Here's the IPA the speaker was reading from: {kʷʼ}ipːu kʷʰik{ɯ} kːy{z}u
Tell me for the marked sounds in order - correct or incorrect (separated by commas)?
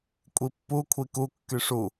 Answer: correct, incorrect, incorrect